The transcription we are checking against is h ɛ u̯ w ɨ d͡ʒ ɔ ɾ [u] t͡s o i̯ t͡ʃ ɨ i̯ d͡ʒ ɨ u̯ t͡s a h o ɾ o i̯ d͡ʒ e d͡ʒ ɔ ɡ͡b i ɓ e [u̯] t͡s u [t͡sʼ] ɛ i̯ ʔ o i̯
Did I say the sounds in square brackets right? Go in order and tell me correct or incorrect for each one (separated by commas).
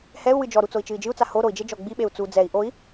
correct, correct, incorrect